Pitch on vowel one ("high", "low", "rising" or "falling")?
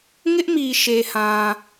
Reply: high